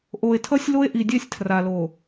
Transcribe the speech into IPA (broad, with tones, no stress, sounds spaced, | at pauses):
ʔ o˨ e̯ tʰ ʌ˦ sʲ l o˦ e̯ ʔ i˨ dʲ ɛ˦ sʲ tʰ r a˨ l o˨